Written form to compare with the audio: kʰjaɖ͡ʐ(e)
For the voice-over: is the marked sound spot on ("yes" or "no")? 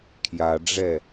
no